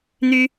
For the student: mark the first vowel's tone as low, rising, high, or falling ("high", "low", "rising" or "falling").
high